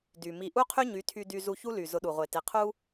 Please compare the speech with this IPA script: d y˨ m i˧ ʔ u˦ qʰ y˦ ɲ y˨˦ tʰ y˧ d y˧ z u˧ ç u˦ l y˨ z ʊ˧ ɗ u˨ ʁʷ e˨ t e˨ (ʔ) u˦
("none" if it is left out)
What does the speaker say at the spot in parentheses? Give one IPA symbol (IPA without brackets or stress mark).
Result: qʰ